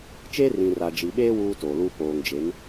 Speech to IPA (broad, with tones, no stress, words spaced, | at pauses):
t͡ʃeː˦rĩ˨ra˨d͡ʒi˨ ɓeː˦ wuː˦toː˨lu˦ poː˨ŋd͡ʒe˨˦n